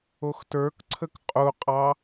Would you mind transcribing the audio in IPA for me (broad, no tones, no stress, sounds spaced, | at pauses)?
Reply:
o x t ə˞ k ǀʰ ə k qʼ u qʼ ɑ